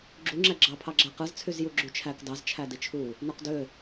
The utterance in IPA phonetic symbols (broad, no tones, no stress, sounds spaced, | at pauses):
ɡ͡ǁ u ŋ͡ǁ æ ɡ͡ǁ ɑ pʰ ɑ ɡ͡ǁ æ q ɯ z t͡sʰ y z j u ɡ͡ǁ y t͡ʃʰ æ k d ɑ z t͡ʃʰ æ d i t͡ʃʰ u | n o q d ø